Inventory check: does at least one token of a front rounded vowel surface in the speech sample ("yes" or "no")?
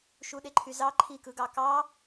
yes